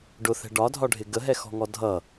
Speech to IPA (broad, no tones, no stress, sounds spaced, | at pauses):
ɖ ʊ θ ɛ̤ ɖ ɒ dʱ ɒ ɖʱ ɪ ɡ ə ɦ ɛ x ɔ̤ ŋ ɔ dʱ ʌ